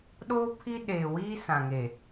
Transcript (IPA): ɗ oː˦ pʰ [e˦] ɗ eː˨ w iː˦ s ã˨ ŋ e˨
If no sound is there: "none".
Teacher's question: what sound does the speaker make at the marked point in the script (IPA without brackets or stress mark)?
i˦